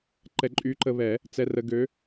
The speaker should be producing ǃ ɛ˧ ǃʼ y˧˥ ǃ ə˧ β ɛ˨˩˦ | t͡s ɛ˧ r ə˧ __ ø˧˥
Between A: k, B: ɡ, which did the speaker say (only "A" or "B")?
B